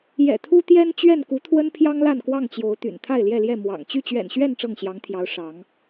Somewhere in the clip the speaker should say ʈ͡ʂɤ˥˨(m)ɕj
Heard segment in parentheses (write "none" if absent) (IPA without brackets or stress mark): ŋ